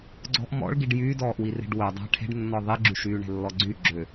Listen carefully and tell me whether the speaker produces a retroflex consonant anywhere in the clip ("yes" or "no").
yes